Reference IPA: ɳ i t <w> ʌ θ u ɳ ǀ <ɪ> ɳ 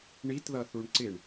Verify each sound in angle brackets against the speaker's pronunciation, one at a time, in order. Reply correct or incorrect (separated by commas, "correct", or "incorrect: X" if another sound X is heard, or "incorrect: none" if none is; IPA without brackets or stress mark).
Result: incorrect: ð, correct